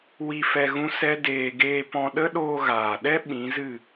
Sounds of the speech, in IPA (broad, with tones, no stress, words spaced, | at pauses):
wi˧fɛ˧ ɣũ˦sɛ˦ deː˧ ɡeː˧pɔ̃˧ ɗə˦ɗoː˧ ɣaː˨ɗɛ˦ ɓĩ˨˦zɨ˦˨